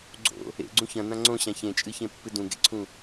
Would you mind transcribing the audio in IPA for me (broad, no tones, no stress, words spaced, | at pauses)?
ɡ͡ǀo̰ | ḛɡ͡ǀũ çɐ̃n̪ã ŋ͡ǀõɕã çẽt͡ʃʼɨçẽpːɨ dũɡḛǀʰũ